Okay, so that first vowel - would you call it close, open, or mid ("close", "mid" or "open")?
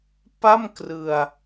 open